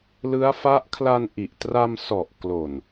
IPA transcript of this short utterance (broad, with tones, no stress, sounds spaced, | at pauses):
l ɯ˦˥ a̯ f a˦˥ ʔ kʰ l a˧ n ʔ i˨˩ ʔ t r a˧ m s ɔ˨˩ ʔ k l o˨˩ n